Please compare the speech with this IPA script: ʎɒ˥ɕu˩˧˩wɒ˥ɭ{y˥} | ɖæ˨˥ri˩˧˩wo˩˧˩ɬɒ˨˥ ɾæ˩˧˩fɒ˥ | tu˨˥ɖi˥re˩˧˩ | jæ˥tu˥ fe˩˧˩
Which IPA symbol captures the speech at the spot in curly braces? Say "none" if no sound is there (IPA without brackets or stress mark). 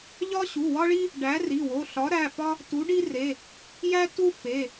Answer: i˥